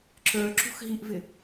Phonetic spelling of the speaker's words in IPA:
ǁə˞ ǁṳxɦiʔvɪ

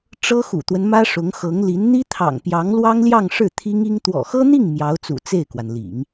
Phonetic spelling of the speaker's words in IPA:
ʈ͡ʂɤ˥xṵ˨˩t̪wə˦nmä˥ ʂʊ˧˥ŋ xɤ˧˥ŋli˧˥n n̪i˥t̪ʰɑ̰˨˩ŋ pjɑ˧˥ŋlwɑ˥ŋljɑ˥˧ŋ ʂɻ̩˥˩t̪ʰi˥ŋi˥ŋ t̪wɔ̰˨˩xɤ˥n̪i˥˩ŋ mjɑ˧˥ʊ̯t͡sṵ˨˩ t͡se˥˩ɪ̯kwa˩nlḭ˨˩˦ŋ

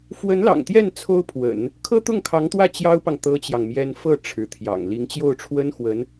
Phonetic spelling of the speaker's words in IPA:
fwə˧˥nlɑ̰˨˩ŋt̪jɛ˥˩n t͡sʰo˥ʊ̯pʰwə̰˨˩˦n | kʰɤ˥t̪ʊ˥˩ŋkʰɑ˧˥ŋt̪wä˥˩ t͡ɕjɑ˥ʊ̯pɑ˨ŋ t̪ɤ˥t͡ɕjɑ˨ŋmjɛ˥n fɤ˥˩ ʈ͡ʂʰɻ̩˧˥t̪ʰjɑ̰˨˩ŋ li˧˥ŋt͡ɕjo˥˩ʊ̯ʈ͡ʂʰwə˥nxwə˧˥n

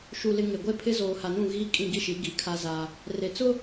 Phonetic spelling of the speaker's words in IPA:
ʃu˨lɪ˨ ŋe˨ɡʷe˦pʰɪ˦ zoː˨ha˨nũ˦˨ ɣiː˦ kʼĩ˦˨ɡi˦ʃi˨˦ ɡi˨˦kʰa˦ za˦ | re˨t͡sʊ˦

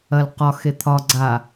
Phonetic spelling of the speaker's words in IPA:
ɐl qɒxe t̪ʰɒ ɡ͡ǀa

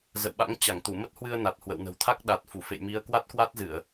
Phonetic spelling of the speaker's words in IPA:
zə̰˧˨wɓa̰˧˥ŋ t͡ɕa˧˩ŋt̪u˧˩ mə˦˥t̚hwɨ˧ə̯ na˨˩t̚hwə̰˧˨wnə̤˨˩w t̪ʰa˦˥k̚ɗa˨˩t̚ fu˧˩fḛ˧˨jmi˨˦ə̯ kwa˦˥t̚kwa˦˥t̚zɨ˧˩˨ə̯

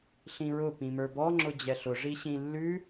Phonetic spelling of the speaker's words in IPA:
ɬĩɹʊ pĩmə˞bɔ ŋ͡ǁʊd͡ʑɛɬʊ ʐiɕĩlːʉ

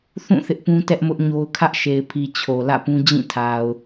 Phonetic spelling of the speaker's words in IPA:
θũ˦˨ θɪ˦ʔpũ˦ tɛ˦ʔmʊ˦ʔɲo˦ʊ̯ kʰä˦ʔʃe˨ɪ̯pʰi˨ t͡ɕʰo˨lä̰˦˨pũ˦ d͡ʑĩ˦˨tʰa˨ʊ̯

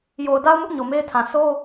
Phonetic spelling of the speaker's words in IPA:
jo˨ʊ̯da˦ʊ̯mʊ˦ʔ ɲo˨me˦ɪ̯tʰã˨ so˦

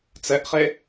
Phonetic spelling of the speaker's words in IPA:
t͡sɛʔχe

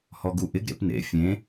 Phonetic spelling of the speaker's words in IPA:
hɔɡuʔɪɡ ɾḛpnḛ fʲẽ

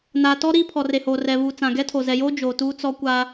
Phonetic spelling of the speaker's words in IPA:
na˨ tɔ˦ ɾiː˦pʰɔ˨re˨hoː˨ rɛ˨βuː˨ t͡sã˨ɡɛ˦tʰo˨ zɛ˨joː˦ d͡ʒoː˨ tuː˦t͡sɔ˦kʷa˦

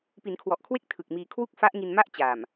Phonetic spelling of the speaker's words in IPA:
pi˩˦nkʰwɔ˨˩ʔkʰwe˥˩k̚ tʰɯ˨˩k̚miː˧ kʰwu˥˩k̚fa˦˥ʔŋi˧nma˥˩ʔ t͡ɕaː˨˩m

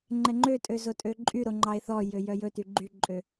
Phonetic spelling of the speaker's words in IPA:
ŋ͡ǃɛŋ͡ǃøtʼø zotʼøǃʼyɾo ŋ͡ǃɑe̯θɔjø jœjɵty ɡ͡ǃyǃʼø

